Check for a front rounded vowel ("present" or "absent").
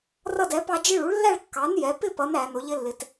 absent